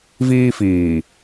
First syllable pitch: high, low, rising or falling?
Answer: high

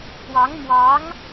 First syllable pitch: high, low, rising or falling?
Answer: rising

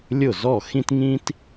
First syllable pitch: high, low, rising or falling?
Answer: falling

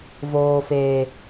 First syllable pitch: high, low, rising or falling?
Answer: low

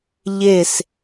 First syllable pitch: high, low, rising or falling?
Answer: falling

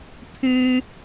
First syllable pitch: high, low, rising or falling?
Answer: high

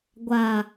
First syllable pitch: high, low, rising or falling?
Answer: low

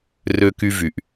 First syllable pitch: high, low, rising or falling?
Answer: high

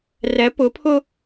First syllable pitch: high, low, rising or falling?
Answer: rising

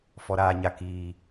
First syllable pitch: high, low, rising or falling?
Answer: low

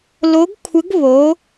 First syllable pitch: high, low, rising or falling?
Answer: rising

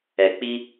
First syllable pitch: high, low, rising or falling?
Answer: low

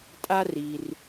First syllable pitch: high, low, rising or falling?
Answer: high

